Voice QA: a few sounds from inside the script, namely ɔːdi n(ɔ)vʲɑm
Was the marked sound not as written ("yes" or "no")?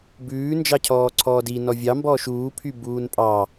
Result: no